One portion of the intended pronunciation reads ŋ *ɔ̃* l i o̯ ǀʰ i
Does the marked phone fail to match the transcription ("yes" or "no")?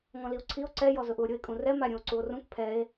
no